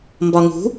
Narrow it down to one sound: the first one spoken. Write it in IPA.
m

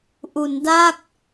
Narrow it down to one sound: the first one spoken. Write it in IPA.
ʔ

